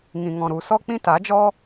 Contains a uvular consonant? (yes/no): no